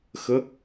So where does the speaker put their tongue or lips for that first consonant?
velum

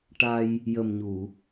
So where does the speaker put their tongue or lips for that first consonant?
retroflex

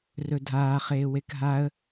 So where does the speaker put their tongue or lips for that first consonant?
tongue tip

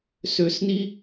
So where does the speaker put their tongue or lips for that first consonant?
tongue tip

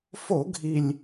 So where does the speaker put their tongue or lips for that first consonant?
lips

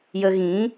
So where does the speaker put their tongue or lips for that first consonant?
palate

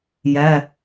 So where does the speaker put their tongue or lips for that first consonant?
palate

